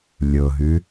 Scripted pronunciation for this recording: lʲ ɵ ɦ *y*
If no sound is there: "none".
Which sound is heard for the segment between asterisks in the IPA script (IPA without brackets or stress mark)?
y